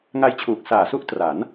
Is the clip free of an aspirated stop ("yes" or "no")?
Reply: no